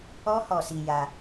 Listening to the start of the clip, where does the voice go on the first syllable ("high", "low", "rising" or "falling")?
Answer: high